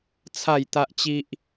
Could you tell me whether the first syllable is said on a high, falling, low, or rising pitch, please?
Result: falling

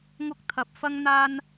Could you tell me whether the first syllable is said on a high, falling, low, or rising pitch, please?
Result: high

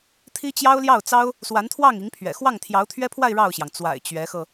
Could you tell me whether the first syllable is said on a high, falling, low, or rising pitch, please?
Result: high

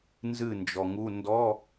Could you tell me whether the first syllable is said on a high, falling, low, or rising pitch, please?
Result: falling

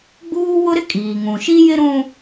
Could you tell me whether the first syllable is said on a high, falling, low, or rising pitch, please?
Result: high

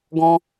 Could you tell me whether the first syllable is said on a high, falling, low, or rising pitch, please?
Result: high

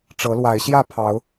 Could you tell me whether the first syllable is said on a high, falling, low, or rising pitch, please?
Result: rising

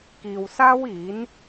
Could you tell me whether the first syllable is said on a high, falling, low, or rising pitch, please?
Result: low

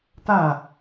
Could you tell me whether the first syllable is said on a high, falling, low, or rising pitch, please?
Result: falling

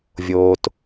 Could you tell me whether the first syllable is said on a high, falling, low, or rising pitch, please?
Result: low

